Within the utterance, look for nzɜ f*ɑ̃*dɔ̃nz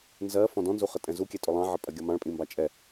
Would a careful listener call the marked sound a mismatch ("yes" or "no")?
yes